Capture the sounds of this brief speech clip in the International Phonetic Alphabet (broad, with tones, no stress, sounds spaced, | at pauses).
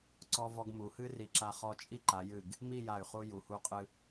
ǀ ɔ˧ v ɔ˧ ɡ m u˩˧ h ɨ˥ r i˧˩ ǁ a˧ χ ɔ˧ t͡ʃʼ i˥˧ ǃ a˩˧ j ɨ˧˩ ɡ | m i˥˧ j a˧˩ y̯ χ u˧ j u˩˧ h u˧ qʼ ɨ˧